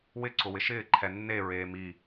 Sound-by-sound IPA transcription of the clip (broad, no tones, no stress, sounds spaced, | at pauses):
w ɪ ǀ ʊ w ɪ ʃ ɪː ǃʰ ɛ nː e ɹ eː m i